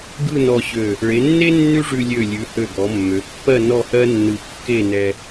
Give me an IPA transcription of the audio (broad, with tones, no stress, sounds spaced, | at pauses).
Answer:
ɡ ɯ˥˧ n ɔ˧ ɕ ø˧˩ | ɭ e˩˧ nː e˥ nː ʉ˥ ʐ ʉ˧ lʲ ø˧˩ lʲ ʉ˩˧ h ø˧˩ ɡ ɔ˩˧ mː ø˩˧ pː ɜ˥˧ n ɔ˥˧ h ɜ˥ nː ɯ˧˩ kː e˥˧ n ɛ˧